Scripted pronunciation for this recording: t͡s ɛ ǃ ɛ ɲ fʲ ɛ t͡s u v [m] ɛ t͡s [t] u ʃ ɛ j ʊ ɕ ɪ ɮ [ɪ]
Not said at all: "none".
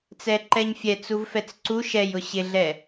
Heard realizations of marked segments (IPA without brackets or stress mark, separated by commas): f, ǀ, ɛ